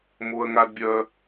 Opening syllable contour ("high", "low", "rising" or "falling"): high